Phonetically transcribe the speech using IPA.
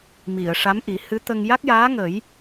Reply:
m i˨˩˨ ə̯ ʂ a˧˥ m ʔ i˨˩˦ h ɨ˧˥ t̪ ə˧ ŋ j a˦˥ k̚ j aː˧˥ ŋ ə˨˩˦ j

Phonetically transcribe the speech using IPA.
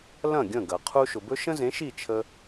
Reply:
l ɐ̃˥˩ ɡʲ ə̃˥˩ ɡ ɐ˩ qʰ u˧ ʃ ʊ˩ b ɵ˥ ʃ ə̃˥ z ẽ˩˥ ʃ i˥˩ t͡ʃʰ ə˧

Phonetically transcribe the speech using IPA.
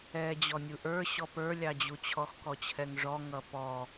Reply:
ɛ d͡ʑ ɔ nʲ u ʔ ə˞ ɕ ɔ p ə˞ lʲ ɑ d͡ʑ u t͡ɕʰ ɔ x k ɔ t͡ɕʰ ɛ ŋ ʐ ɔ ŋ ʌ p ɔ

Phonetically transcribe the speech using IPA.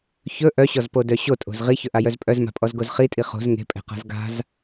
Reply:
ç ɵ ʔ œ ɕ ɔ z p o d œ ɕ o tʼ o̤ z ʁ i ç ɵ ʔ a j œ z pʼ œ z m a̤ pʼ ɔ z ɡ o z χ i tʼ i χ o̤ z ŋ e̤ pʼ ɛ̤ q a̤ z ɡ a̤ z

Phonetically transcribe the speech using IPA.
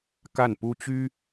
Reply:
k a˥˩ n p u˥ t͡ɕ y˥

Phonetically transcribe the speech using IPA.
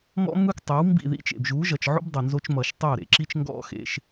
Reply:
m ɔ̰˦ m ɯ˦ k tˤ o˨˦ w m b ḭ˦˨ ð ḭ˦ t͡ʃ ḛ˨ b ʒ u˨˦ ʒ ʌ˨ t͡ʃ ʕ o̰˦ b dˤ o˨ n z o˧ t͡ʃ m ʌ˨ ʃ tˤ o˦˨ ɾ ḛ˨ ǁ i˦ t͡ʃ ŋ ɡ ɔ̰˦ x ḛ˧ ʃ

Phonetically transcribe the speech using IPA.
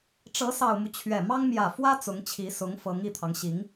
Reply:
ʈ͡ʂ ɤ˧˥ s ɑ˨˩ ʊ̯ m u˦ t͡ɕʰ ɥ ɛ˨˩ m ɑ˥ ŋ m j ä˨˩ f w ä˥ t͡s ʊ˧˥ ŋ t͡ɕʰ i˧˥ s ʊ˧˥ ŋ f ɤ˧˥ ŋ i˨˩ t̪ʰ ɑ˦ ŋ ɕ i˧˥ ŋ

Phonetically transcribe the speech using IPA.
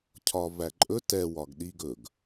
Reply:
cʰ ɒ v æ ǃʼ ɵ t ɛ w ɒ ɡ ɗ i ɡ ɵ ɡ

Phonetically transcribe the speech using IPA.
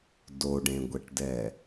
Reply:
d o ɖ ẽ ɡʷ ɛ ʈ d ɛ

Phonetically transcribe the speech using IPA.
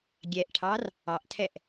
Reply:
ɡʲ ɛ ʔ ʈʰ ɑ r | ɑ ʔ tʰ ɛ ʔ

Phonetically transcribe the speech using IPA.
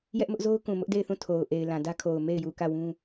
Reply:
j ɛ˦ ʔ m ʊ˦ ʔ z o˦ ʊ̯ k ũ˨ m ʊ˦ ʔ d e˦˨ ɪ̯ θ ũ˦˨ tʰ o˨ ʊ̯ ʔ e˨ ɪ̯ l ã˨ d ä˦ kʰ o˨ ʊ̯ m e˦˨ ɪ̯ j u˨ k ä˦˨ w ũ˦

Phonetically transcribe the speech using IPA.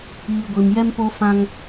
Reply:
iː˨ ɡʷ i˨ m j ɛ˦ m p o˦ f ã˦ ŋ

